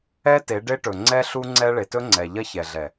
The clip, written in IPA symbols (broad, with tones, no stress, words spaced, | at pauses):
ɛ˦ te˨˦ɖe˦ʈɵ˨ ŋ͡ǀɛ˦ɬu˦ ŋ͡ǀɛ˦ɭe˨ tɵ˦ŋ͡ǀɛ˨ ʎɐ˦çɛ˨ɮɛ˨